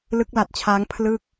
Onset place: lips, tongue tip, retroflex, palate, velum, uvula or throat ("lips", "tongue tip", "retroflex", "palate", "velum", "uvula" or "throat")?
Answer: tongue tip